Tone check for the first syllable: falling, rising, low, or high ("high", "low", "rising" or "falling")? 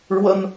high